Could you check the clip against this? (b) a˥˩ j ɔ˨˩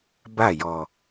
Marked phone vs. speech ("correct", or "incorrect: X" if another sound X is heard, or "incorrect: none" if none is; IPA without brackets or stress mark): correct